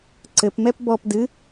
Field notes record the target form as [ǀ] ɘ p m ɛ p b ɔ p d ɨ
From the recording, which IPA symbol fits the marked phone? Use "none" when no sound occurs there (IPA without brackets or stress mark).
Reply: ǀ